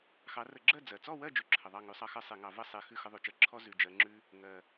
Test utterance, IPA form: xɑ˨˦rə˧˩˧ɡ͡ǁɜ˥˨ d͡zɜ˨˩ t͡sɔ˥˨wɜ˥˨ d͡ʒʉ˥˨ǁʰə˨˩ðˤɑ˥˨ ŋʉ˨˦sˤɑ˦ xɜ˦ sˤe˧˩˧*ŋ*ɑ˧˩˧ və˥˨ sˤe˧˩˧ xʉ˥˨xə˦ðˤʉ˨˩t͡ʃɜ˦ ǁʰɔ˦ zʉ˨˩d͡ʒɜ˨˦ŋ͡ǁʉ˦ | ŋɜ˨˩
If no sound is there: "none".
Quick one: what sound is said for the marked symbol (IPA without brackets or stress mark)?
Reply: ŋ